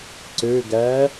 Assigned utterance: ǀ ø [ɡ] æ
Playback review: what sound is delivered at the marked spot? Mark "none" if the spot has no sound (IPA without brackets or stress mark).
ɡ